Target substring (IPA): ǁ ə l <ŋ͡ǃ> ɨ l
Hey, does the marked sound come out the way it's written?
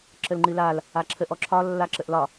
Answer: yes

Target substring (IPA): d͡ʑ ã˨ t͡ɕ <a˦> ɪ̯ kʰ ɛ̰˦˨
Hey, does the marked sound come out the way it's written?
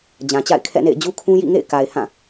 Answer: no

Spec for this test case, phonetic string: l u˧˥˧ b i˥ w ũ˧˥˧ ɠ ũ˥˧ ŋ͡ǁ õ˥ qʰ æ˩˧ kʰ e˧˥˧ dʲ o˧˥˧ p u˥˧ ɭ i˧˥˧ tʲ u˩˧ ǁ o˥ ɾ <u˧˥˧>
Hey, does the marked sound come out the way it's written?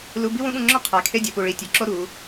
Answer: no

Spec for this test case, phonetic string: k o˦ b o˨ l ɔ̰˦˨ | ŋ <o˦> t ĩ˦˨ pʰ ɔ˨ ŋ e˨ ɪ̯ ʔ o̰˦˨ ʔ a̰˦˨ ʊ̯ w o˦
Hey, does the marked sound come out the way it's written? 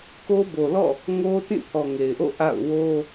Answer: yes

